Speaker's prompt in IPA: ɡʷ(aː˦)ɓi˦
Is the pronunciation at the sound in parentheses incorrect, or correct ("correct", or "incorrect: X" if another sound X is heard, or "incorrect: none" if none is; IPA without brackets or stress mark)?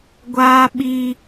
correct